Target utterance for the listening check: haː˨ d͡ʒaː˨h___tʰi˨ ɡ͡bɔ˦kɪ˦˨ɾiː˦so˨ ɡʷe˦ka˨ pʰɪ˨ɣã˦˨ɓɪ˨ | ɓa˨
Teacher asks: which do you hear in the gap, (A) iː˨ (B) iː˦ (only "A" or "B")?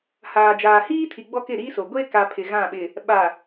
B